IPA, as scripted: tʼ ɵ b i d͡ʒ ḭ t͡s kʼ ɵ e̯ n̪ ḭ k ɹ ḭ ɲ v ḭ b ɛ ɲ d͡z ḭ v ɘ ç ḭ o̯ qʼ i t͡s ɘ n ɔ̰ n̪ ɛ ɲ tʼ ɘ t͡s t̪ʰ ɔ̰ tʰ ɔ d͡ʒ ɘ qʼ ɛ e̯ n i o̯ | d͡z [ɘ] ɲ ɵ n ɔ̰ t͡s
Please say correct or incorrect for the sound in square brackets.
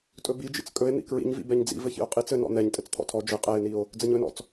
correct